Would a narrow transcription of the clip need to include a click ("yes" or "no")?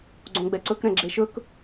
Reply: yes